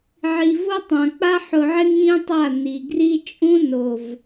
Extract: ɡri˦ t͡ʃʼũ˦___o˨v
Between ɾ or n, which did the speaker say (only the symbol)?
n